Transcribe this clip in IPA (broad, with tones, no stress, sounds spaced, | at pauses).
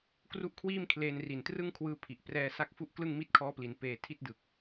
k r u˦˥ ʔ kʰ w iː˥˩ m kʰ l eː˧ n r i˨˩ n t r ɯ˥˩ ŋ kʰ w ɯː˦˥ pʰ i˨˩ ʔ p r ɛː˧ s a˦˥ k̚ f u˦˥ ʔ k l ɯ˥˩ ŋ m i˥˩ t̚ kʰ ɔː˦˥ p l i˩˦ n p eː˧ tʰ i˥˩ t̚ d ɯ˨˩ k̚